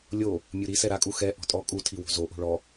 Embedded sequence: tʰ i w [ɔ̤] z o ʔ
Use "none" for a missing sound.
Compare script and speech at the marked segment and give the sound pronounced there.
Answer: o̤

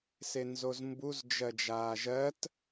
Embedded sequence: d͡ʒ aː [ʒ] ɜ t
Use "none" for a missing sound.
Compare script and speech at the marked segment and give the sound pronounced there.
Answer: ʒ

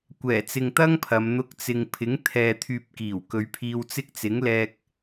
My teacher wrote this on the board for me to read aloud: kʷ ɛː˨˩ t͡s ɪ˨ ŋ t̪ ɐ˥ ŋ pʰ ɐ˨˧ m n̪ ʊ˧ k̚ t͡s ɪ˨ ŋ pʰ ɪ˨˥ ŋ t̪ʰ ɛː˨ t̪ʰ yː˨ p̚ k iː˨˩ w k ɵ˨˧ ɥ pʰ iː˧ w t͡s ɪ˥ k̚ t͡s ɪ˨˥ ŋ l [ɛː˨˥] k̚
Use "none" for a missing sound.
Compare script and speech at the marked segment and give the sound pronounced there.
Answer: ɛː˧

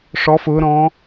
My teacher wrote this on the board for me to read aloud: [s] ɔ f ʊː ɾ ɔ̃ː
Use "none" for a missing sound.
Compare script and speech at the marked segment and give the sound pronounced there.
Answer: ʂ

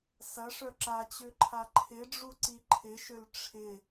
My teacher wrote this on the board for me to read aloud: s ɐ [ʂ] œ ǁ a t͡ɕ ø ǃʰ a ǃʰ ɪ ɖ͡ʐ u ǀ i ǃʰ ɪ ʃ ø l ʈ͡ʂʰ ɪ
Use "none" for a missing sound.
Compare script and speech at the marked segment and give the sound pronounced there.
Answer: ʂ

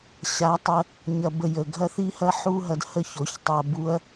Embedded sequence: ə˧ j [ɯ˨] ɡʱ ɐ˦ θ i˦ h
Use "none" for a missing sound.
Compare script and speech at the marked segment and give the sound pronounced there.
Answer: ə˨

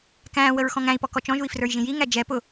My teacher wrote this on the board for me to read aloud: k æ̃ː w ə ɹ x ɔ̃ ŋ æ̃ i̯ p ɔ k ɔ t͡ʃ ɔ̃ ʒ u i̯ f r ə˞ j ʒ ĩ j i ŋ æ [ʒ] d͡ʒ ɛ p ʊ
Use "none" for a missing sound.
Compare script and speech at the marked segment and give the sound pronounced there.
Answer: none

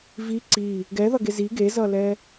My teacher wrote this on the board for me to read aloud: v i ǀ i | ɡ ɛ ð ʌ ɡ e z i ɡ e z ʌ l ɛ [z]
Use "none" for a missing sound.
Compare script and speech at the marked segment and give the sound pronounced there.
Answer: none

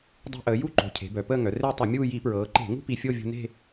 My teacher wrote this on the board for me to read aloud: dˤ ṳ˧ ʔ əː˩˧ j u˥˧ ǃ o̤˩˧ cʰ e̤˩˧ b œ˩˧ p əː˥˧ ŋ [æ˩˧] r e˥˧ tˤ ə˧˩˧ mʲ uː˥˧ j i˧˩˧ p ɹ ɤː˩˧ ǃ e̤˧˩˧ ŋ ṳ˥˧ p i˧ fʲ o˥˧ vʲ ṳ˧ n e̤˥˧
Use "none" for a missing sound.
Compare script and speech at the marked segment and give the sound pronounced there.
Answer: œ˩˧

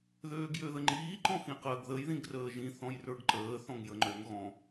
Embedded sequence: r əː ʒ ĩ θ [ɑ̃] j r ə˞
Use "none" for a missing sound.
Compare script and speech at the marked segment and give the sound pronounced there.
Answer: ɔ̃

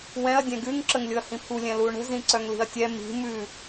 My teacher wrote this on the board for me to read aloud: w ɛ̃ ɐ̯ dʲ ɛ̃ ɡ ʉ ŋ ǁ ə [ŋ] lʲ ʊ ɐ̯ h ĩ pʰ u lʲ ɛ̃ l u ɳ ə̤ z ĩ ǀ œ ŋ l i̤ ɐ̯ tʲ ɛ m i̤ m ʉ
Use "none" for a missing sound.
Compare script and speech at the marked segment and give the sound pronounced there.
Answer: ŋ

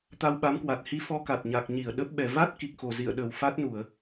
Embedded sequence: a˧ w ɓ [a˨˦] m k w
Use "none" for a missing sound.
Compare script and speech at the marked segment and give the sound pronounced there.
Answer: a˨˦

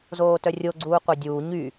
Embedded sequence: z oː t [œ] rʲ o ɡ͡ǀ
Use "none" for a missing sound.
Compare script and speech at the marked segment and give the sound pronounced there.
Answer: œ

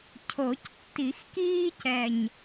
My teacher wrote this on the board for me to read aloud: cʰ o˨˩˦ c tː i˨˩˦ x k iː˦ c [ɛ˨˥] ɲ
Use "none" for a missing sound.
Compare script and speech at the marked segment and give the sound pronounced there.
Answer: ɛ˨˩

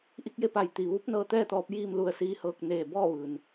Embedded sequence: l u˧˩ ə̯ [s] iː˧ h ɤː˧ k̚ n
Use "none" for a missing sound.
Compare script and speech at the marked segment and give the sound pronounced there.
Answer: s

